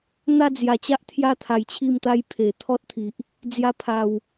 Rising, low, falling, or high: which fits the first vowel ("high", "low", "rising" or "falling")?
falling